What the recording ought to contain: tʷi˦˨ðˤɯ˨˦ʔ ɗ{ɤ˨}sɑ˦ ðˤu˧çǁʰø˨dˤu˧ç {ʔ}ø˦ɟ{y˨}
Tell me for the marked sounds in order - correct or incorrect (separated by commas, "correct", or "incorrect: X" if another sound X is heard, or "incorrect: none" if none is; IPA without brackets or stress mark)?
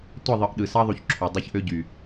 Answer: incorrect: ɯ˨, correct, correct